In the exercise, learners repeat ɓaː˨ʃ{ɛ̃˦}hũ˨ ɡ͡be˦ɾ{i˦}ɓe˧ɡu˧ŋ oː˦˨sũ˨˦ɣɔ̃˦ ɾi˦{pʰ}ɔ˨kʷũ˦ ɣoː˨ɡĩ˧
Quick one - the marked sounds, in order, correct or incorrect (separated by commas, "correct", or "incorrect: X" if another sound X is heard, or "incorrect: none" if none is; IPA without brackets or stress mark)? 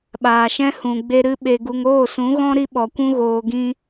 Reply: correct, incorrect: ɨ˦, incorrect: ɓ